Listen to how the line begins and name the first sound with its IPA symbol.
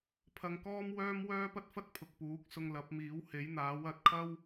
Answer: pʰ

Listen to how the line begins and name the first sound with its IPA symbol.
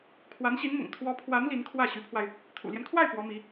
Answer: kʰ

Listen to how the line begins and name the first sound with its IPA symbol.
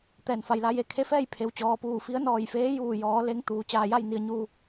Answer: t̪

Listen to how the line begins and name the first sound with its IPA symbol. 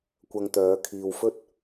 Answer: kʷ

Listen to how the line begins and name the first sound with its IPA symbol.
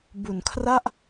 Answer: b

